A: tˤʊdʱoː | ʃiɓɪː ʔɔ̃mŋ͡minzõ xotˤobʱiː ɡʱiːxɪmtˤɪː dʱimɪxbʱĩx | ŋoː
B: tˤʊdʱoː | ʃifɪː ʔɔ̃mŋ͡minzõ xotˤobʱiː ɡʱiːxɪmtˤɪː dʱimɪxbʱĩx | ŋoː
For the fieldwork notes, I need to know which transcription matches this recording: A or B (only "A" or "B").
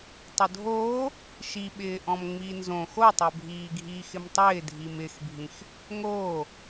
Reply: A